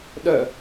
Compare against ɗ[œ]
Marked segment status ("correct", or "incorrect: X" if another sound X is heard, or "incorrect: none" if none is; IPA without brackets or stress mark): correct